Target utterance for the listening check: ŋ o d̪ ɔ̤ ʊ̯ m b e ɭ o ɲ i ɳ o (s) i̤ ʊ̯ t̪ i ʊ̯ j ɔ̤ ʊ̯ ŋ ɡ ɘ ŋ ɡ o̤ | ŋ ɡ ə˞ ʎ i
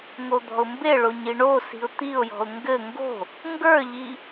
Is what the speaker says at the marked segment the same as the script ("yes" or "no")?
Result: yes